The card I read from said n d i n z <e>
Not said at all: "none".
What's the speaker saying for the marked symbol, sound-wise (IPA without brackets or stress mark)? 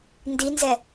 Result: ɛ